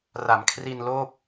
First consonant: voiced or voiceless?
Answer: voiced